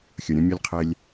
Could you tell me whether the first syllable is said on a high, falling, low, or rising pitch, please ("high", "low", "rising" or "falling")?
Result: low